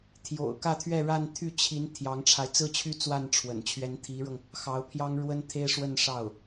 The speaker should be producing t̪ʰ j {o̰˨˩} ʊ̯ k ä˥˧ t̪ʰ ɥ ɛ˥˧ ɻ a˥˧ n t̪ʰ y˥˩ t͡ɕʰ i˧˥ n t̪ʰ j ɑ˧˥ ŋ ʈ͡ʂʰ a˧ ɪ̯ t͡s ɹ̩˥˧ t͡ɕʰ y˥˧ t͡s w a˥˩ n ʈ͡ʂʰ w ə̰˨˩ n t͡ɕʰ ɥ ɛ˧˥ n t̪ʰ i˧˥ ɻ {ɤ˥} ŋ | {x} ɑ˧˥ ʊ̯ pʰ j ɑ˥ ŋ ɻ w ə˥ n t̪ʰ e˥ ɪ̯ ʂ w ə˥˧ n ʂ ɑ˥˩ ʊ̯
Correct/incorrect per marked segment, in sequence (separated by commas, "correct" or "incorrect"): correct, incorrect, correct